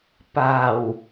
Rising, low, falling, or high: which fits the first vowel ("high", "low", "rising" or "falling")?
low